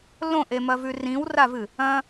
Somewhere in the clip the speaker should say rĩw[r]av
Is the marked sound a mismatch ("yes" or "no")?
no